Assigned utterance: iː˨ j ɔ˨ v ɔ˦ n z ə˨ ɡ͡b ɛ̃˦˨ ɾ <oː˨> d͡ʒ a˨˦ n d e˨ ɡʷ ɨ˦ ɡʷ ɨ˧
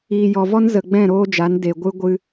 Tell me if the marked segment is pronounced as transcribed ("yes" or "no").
no